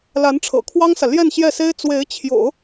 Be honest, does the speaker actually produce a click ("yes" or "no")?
no